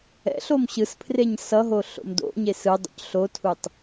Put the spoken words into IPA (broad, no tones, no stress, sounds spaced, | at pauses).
ɛ̰ ɬ o m ɕ ɯ s pʰ r e ɲ s ʌ ɦ o ɬ o̰ m d o̰ ɲ e s ɯ dˤ o̰ c ɬ o tʰ u tˤ